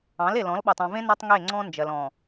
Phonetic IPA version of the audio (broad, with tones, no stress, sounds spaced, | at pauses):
ɑ̃˨˦ l e˨ l ɔ̃˨˦ l ɓ ɔ˨ tˤ ɔ̃˨ v ẽ˦ n ɔ˦ tˤ ŋ e˦˨ ŋ͡ǀ ɔ̃˦ n d͡ʒ ɜ˨ l ɔ̃˨